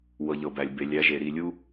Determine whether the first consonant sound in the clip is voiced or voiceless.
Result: voiced